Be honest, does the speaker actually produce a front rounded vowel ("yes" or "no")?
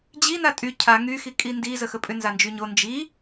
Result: yes